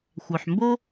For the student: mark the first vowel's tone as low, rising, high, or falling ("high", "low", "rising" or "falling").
low